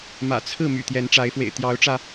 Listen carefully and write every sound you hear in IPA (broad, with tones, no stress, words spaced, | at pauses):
mä̰˨˩t͡sʰɹ̩˥˨ my̰˨˩t̪jɛ˨˦nʈ͡ʂa˨˦ɪ̯fwḛ˨˩ɪ̯ t̪jɑ˨˦ʊ̯ʈ͡ʂä˧